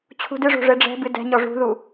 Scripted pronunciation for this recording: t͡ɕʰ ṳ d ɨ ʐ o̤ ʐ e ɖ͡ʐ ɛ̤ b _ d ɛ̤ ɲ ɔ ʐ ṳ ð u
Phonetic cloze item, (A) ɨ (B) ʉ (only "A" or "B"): A